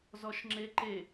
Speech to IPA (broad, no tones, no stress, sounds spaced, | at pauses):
z ɔ ʃ ŋ͡ǁ e ǃ e